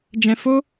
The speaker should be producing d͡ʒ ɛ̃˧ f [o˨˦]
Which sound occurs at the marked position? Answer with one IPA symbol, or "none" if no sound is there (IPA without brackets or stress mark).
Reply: o˦